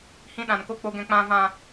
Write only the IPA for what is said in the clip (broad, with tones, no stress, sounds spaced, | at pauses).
h ĩ˧ ɗ ã˨ n k o˧ k͡p o˨ ɡ ɛ̃˨ k͡p ã˨ v ã˨